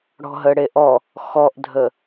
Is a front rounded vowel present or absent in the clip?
absent